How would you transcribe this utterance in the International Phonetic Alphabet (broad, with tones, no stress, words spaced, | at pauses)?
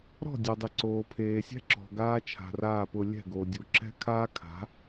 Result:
ɾɔ̤˦˨dʲo˨ dˤi˨ ǀoː˨pʰeː˨ sʲɛ̤˦ǁɔ̤˨ ɡaː˦t͡ʃʰa̤˨raː˦˨pʊ˧ lʲɛ̤˦˨ ɡo˨dʲu˨ ǁɛ̤˦ kʰaː˦kʰa̤˨˦